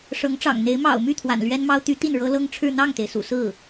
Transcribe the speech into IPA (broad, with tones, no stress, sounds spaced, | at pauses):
ʂ ɤ˧˥ ŋ ʈ͡ʂ ɑ̰˨˩ ŋ n̪ e˧˥ ɪ̯ m ɑ̰˨˩ ʊ̯ m y˥˩ t̪ʰ w a̰˨˩ n l ɥ ɛ˥ n m ɑ˥ ʊ̯ t̪ y˧˥ t̪ i˥˩ n ɻ ɤ˥ l ɤ˥ ŋ ʈ͡ʂʰ ɻ̩˥˧ n̪ ɑ˥˩ ŋ t̪ e˩ ɪ̯ s ṵ˨˩ s ɹ̩˥˩